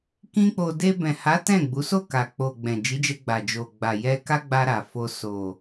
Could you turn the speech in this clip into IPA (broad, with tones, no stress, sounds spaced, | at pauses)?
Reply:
k ĩ˦ k͡p o˧ d e˧ b ɛ̃˨ h a˨˦ t ɛ̃˦˨ ɡ͡b u˨˦ s o˦˨ k a˨ k͡p o˨ ɡ͡b ɛ̃˨ d͡ʒ i˨˦ d͡ʒ ɛ˧ ɡ͡b a˨ d͡ʒ o˨ ɡ͡b a˨ j ɛ˧ k a˦ ɡ͡b a˧ ɾ a˨ f o˧ s o˨